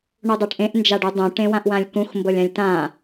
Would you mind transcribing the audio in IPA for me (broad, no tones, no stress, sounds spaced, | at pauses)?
ɳ u dˤ a ʈ ʔ ẽ ʔ n d͡ʒ a ɖ u dˤ ũ ʈ ẽ w ã ʔ w ã lʲ k ũ x m b ɤ lʲ ã lʲ t ã